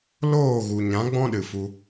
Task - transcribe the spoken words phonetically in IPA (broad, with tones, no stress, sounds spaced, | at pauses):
l oː˦˨ ɣ u˨ ɲ ã˨˦ ɡ͡b ɔ̃˦ ɗ ɨ˨ f u˧